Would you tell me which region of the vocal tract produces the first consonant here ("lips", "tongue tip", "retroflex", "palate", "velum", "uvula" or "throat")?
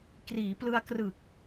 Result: velum